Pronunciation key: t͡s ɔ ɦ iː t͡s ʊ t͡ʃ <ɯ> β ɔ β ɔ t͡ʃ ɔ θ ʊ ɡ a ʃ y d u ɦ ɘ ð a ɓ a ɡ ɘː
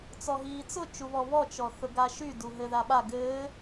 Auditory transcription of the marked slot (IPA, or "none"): u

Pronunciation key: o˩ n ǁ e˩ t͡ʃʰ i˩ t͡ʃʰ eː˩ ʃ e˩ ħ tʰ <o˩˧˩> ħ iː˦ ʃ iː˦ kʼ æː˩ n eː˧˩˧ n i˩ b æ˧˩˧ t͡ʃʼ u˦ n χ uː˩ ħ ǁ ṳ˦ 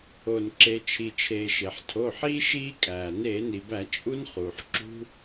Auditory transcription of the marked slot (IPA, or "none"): o˩˧˩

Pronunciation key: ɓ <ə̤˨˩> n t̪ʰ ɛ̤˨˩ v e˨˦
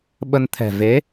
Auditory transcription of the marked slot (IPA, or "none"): ə˧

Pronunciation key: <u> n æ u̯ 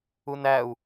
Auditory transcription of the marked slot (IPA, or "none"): u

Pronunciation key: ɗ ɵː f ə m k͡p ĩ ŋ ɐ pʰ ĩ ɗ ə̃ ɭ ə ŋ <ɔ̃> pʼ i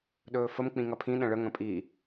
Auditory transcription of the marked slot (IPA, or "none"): ə̃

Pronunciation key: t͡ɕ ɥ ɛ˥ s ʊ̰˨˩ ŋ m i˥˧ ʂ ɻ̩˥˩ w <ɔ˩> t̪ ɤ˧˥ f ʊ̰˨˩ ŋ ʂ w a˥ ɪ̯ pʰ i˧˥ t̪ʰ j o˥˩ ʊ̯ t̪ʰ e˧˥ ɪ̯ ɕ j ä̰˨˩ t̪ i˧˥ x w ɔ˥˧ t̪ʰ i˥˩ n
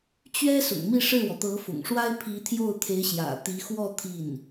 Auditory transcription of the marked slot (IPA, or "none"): ɔ˩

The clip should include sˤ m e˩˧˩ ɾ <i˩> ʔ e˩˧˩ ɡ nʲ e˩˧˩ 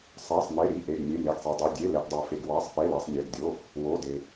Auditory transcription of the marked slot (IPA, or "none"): i˩˧˩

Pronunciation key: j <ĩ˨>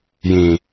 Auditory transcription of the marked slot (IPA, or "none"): ĩ˨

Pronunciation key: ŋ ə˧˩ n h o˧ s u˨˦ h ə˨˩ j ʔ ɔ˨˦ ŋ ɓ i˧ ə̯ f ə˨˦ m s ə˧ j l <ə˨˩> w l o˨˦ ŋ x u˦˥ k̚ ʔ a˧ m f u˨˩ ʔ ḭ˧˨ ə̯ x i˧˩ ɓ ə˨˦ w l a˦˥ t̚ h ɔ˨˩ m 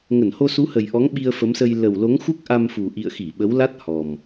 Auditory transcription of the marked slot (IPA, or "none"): ə˨˩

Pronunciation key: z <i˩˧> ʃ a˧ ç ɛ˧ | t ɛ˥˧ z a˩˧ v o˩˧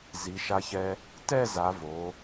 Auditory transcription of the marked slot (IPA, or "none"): i˩˧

